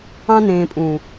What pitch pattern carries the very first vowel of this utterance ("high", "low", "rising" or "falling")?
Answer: high